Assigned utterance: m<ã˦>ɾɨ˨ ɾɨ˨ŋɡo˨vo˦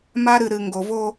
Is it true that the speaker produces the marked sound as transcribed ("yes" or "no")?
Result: no